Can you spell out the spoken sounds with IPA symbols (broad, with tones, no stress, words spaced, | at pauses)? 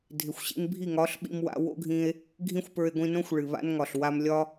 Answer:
dʱɪ˨xʷɕḭ˧n bʱi˦˨ŋɒ˨˦ɬ ɓḭ˧mwa̰˧ wo̰˦ɡʱĩ˧e̯ | ɡʱĩ˦xʷpə˞˧e̯ɡʷĩ˧nõ˦xʷ ɭɨ˨βa̰˦nŋɒ˨ɬ wa˧mlʲɒ˦